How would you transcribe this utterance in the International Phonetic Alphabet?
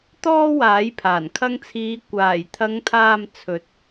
t̪ ɔː˥ w aː˨˥ j pʰ aː˨˩ n kʰ ɐ˧ ŋ t͡sʰ iː˨˧ kʷ aː˨˩ j t̪ʰ ɐ˨˧ ŋ t̪ʰ aː˨ m t͡sʰ ɵ˨˥ t̚

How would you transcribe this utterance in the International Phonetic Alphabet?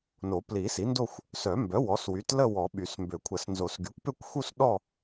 n o˨˩˦ p l i˨˩˦ s i˩˥ n d o˥˧ xʷ | s œ˨˩˦ m b œ˩˥ w ɔ˩˥ s w y˩˥ t l ə˥˧ w ɔ˨˩˦ ɓ y˨˩˦ s m b ø˨˩˦ kʷʰ ə˨˩˦ s n z o˨˩˦ s ɡ y˩˥ kʷ p ø˥˧ kʷ x u˥˧ s ɗ ɔ˥˧

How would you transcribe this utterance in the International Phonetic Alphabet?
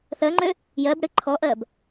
θ ɜ ŋ͡ǃ ø | j ɜ b ɽ ɨ ǃʰ ɔ ʔ ɜ b

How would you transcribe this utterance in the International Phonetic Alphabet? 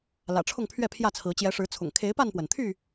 l ä̰˨˩ ʈ͡ʂʰ ʊ˥˨ ŋ pʰ ɥ ɛ˥˨ pʰ j ä˥˨ t͡sʰ ɹ̩˨˦ t͡ɕ j ɛ˨˦ ʂ ɻ̩˨˦ t͡sʰ ʊ̰˨˩ ŋ kʰ e˨˦ ɪ̯ p a˥˨ n p w ə˩ n t̪ʰ y˥˨

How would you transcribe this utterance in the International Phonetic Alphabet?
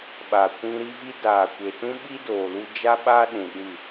ɓ a˨ kʷ ĩ˧ ɾ i˦ v i˦ d aː˨ kʷ e˨ t ũ˦ ɓ i˦ d oː˨ l u˧ d͡ʒ a˦ ɓ aː˦ ɗ ũ˨ ɗ ɨ˦˨

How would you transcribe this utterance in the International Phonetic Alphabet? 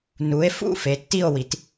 n u˩˧ e̯ f ṵ˥˧ f e˩˧ tː i˥˧ o̯ w i˩˧ t

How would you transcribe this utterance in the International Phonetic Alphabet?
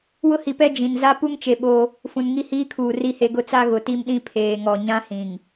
w ʊ˦ h i˨ p ɛ˦ d͡ʒ ĩ˨ n z a˦ p u˦ ŋ t͡ʃ e˨ ɓ o˦ | f ũ˨ n ŋ i˦ h iː˦ kʰ uː˨ r i˦ h e˦ ɡ ʊ˦˨ t͡s a˦ ɣ ʊ˨ t i˦ m ɗ ĩ˦ pʰ eː˨ ŋ ɔ˨ ɲ ã˦ h ĩ˨ ŋ

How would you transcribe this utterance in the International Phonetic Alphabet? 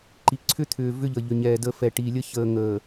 ǃ i˨ ǀʰ ʏ˦ t̪ʰ ʏː˨ v ʏ˦ ʎ ə˨ ʎ ʏ˨ ɲ ɛː˨ d ə˨ f ɛ˨ ʈ iː˨ lʲ ə˦ ç əː˨ ŋ əː˨

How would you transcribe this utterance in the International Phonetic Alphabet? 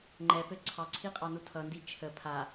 ŋ͡ǃ ɛ p ɘ ǀʰ ɑ ǀʰ i qʼ ɑ n u tʰ ʌ n d i t͡ʃʰ ə pʰ a

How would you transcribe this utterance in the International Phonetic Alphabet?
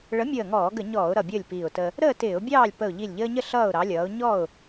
ɭ ə˨˥ mʲ əː˧˩ ŋ ɔː˧˩˧ ɡ ə˧˩˧ ɲ ɔː˧˩˧ ʊ̯ ɾ ʌ˧˩ bʲ əː˥˨ lʲ p iː˧˩ ʊ̯ t ə˦ | ɾ əː˥˨ t ɪː˧˩˧ ʊ̯ bʲ ɑː˥˨ lʲ p ə˧˩ ʊ̯ ʎ i˧˩ lʲ ʎ əː˦ ɲ ə˥˨ ɬ ʌː˥˨ ʊ̯ ɾ ɑ˨˥ lʲ ʌː˨˥ ʊ̯ ɲ ɔ˥˨ ʊ̯

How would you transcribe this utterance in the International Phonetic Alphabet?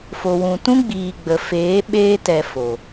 f o˨ w ũ˨ t ũ˦ ɡ͡b iː˨ ɡ͡b ə˨ f eː˨˦ ɓ eː˧ t ɛ˧ f o˨

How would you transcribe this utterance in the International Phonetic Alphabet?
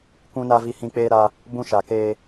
kʷ ũ˦ n a˦ v i˦ h ĩ˦ k͡p eː˦ ɾ a˦ | b ũ˦ ʃ a˨ k eː˦

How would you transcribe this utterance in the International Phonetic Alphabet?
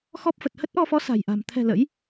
x ɔ˦˥ p̚ f ə˨˩ t̚ h ə˦˥ t̚ ʔ ɔ˧ f ɔ˨˦ s a̤˨˩ j ʔ a̤˨˩ m t̪ʰ ɛ̤˨˩ l ə̰˧˥ j

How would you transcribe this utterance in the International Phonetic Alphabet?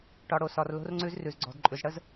ʈ ɒ˨ ɽ o˨ s ɒ˨ r l o̤˧ r ŋ͡ǀ ʉ˧ z r ʉ˨ z ɡ͡ǀ ɔ̤˨ d ǃʼ ʉ˨ z ɽ ə˦ z

